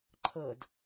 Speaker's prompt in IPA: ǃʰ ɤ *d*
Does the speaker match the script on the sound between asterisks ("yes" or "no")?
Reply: yes